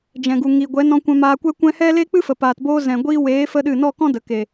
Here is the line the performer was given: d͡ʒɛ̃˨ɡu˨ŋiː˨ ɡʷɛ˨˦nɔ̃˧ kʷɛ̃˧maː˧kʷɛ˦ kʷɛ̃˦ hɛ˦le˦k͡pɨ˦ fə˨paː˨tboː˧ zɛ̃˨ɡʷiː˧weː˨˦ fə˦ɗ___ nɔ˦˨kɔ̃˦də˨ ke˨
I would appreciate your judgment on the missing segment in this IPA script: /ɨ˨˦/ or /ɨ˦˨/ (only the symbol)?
ɨ˦˨